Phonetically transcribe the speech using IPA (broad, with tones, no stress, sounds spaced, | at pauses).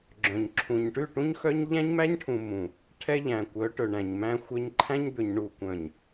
ɡ͡ǁ œ̃˨ ɲ ǁʰ ũ˨ ɲ ʈ ʉ˦˨ ʈ ũ˦ ɲ x œ˦ ɲ ʎ æ̃˦ ɲ m æ˦ ɲ ʈʰ ũ˨ m ũ˨ | ʈʰ ɛ˦ ʎ æ̃˨ kʷ œ˨˦ ʈ ɵ˨ ɳ æ̃˨ ɲ m æ̃˦ xʷ œ˦ ɲ ǃʰ æ̃˦ ɲ d̪ ɵ˨ ɲ ɳ u˨ kʷ œ̃˨ ɲ